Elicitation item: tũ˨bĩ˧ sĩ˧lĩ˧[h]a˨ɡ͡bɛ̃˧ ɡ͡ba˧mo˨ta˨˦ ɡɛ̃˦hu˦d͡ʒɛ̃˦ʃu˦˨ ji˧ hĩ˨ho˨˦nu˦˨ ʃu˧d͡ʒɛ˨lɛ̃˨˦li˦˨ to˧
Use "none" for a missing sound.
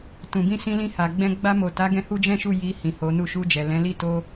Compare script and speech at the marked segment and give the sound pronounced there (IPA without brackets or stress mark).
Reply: h